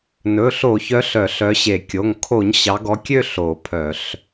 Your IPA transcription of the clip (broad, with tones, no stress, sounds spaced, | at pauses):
n ɵ˩˧˩ ɬ o˧˩˧ ç œ˨˦ ɬ œ˧˩˧ ɬ œ˨˦ ɕ e˧˩˧ kʲ o˩˧˩ ŋ kʰ o˧˩˧ ɲ ɕ ɑ˨˦ ɡ ɔ˨˦ kʲ ø˥˧ ɬ o˧˩˧ pʰ œ˧˩˧ ɬ